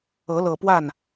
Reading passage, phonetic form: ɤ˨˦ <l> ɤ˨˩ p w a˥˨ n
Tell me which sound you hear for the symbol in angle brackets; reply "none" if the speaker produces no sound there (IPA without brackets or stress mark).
l